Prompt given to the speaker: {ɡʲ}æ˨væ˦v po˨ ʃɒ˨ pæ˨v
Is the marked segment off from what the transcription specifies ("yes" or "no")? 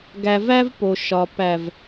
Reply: yes